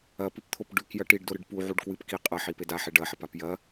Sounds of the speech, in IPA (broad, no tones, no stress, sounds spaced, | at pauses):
ɐ p ɨ p t̪ʰ o p ɖ ʉ k j ɐ ʈ i ɖ d o ɾ ɨ ɖ p u ʕ u ɖ k w ɨ p k i qʼ ɐ ħ i p e d a ħ e ɖ ɐ ħ ɐ p a p j ɐ